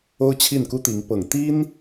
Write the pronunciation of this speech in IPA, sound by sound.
o˥ ʊ̯ t͡ɕʰ i˥˩ n k u˥ t̪ i˧˥ ŋ p ɤ˨˩ ŋ t̪ i˥ n

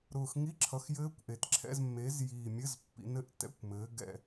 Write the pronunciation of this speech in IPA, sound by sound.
ɾ ʊː˨˩ x ŋ i˧˥˧ ǁʰ ʌ˨˦ x j ɘː˦˥ kʷ ʔ e˨˩ t ǁʰ ɛ̰˧˥˧ z mː eː˨˦ z j iː˨˩ mʲ ɘ˧˥˧ z pː ḭ˨˩˦ n ɘ˧˥˧ ʔ t ɛ̰˧˥˧ kʷ m ɘː˨˦ ɡ ɛ̰˦˨

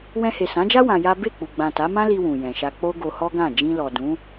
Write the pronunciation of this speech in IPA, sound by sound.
w ɛ̃˧ h e˨ s ã˨˦ d͡ʒ a˦ w ã˧ j a˦ b e˦˨ k͡p u˨ ɡ͡b ã˨ t a˨˦ m ã˦ l i˧ w ũ˨ j ɛ̃˨ ʃ a˧ k͡p o˦ ɡ o˧ h ɔ˦ ɡ ã˦˨ d͡ʒ ĩ˧ l ɔ˨ d ũ˨˦

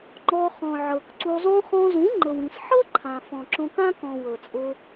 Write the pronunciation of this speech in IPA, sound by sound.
ŋ͡ǃ ɔ˧ χ ɔ̃˨ ʕ ɤ˨ k ǀ u˧ zˤ õ˧ χ ɔ̃˧ z ũ˨˦ ŋ͡ǃ ɤ˨ w ĩ˨ s ħ ɤ˦ ǃʰ ã˨ f ɔ̃˨ ǁ õ˧ k ã˦ k ɔ̃˨ w ɤ˨ t͡sʼ ʊ˧

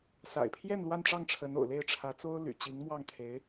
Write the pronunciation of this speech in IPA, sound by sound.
s a̰˨˩ ɪ̯ pʰ j ɛ˥˧ n l w a˥˧ n ʈ͡ʂ ɑ˥˩ ŋ ʈ͡ʂʰ ə˧˥ n o̰˨˩ ʊ̯ l e˥˩ ɪ̯ ʈ͡ʂʰ ä˧˥ t͡s o˥ ʊ̯ l y̰˨˩ t͡ɕ i˧˥ ŋ m w ɑ˥˩ ŋ t̪ʰ e˧˥ ɪ̯

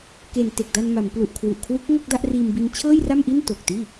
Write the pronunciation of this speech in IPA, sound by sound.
k e˨˩ n t e˨˩ k̚ d a˧ n m a˩˦ m p l u˨˩ ʔ kʰ w u˨˩ ʔ kʰ w u˦˥ k̚ ŋ o˥˩ k̚ d a˥˩ ʔ r iː˧ m b i˧ n t͡ɕʰ ɤː˥˩ j r a˥˩ m ʔ i˥˩ n t o˨˩ k̚ t iː˥˩

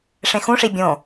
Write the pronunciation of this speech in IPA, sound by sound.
ʂ ẽ x ũ ʂ i bʲ õ

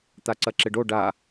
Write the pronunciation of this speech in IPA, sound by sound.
t̪ a ǀ ɐ ǁ ɪ ɖ o ɖ a

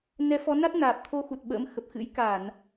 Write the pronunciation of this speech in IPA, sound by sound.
n ɛ˨˦ f ɔ˨˦ n a˦˥ t̚ n aː˨˩ p̚ t̪ʰ o˧ x u˨˩ t̚ ɓ ə̰ː˧˥ m x ə˨˩ p̚ x ɨ̰˧˥ j k a˧˩˨ n

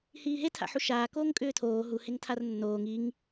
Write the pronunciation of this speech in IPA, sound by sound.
h iː ɦ e tʰ a̰ ħ u ʃ aː k oː ŋ kʼ ʏː tʰ oː ɦ u h e ŋ tʰ a r nː oː ŋ i ŋ

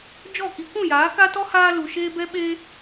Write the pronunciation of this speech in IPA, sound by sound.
d͡ʒ ɔ˦˨ k i˧ k ũ˦˨ j aː˨˦ k a˦ t ɔ˦ h aː˦ l u˧ ʃ eː˦ b ɛ˦ ɓ eː˦

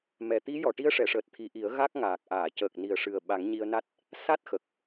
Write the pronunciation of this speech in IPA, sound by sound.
m ɛ˨˩ t̪ i˧˥ j ɔ˨˩ ʈ i˧˥ ə̯ ʂ ɛ˨˩˨ ʂ əː˨˩ t̚ t̪ʰ i˨˩˦ ʔ i˨˩˦ ə̯ ɣ a˦˥ k̚ ŋ aː˨˩ k̚ ʔ aː˨˩˨ c əː˨˩ k̚ n i˨˩ ə̯ ʂ ɨ˨˩ ə̯ ɓ a˨˩˦ ŋ ɲ i˧ ə̯ n a˦˥ t̚ | s a˦˥ t̚ x ə˨˩ k̚

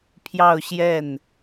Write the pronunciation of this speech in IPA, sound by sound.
pʰ j ɑ˥˧ ʊ̯ ɕ j ɛ˥˩ n

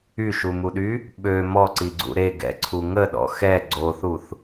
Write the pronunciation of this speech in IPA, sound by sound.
y ʃ u m u ɗ y | ɓ ø m ɔ ǀ i ɡ͡ǀ ṵ ɾ e ɡ ɛ̰ ǀʰ u ŋ ə ɗ ɔ̰ x ɛ ɡ͡ǀ o θ u θ

